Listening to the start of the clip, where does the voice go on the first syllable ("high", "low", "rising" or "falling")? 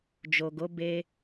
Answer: low